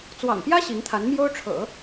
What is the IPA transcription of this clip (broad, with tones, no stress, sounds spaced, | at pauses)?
t͡s w ɑ̰˨˩ ŋ p j ä˥ ɕ i˧˥ ŋ t̪ʰ a˧˥ n m j o˥ ʊ̯ ʈ͡ʂʰ ɤ̰˨˩˦